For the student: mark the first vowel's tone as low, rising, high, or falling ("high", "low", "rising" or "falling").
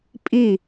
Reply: falling